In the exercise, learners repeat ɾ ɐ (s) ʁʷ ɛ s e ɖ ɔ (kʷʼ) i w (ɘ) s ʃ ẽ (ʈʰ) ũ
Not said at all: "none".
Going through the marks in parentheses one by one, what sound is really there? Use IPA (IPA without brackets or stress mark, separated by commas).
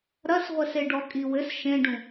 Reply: s, kʼ, ɘ, ɖ